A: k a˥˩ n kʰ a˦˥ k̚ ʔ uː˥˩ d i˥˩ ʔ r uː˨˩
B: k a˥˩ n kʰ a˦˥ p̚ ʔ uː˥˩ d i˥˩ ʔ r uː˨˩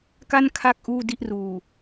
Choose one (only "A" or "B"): A